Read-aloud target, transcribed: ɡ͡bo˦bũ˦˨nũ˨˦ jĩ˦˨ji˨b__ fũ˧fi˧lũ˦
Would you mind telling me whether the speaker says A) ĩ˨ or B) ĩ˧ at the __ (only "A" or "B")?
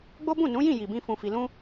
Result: B